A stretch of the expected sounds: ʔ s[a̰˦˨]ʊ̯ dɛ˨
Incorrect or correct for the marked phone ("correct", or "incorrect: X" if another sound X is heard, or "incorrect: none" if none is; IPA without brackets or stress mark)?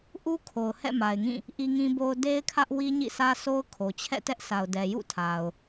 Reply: incorrect: a˨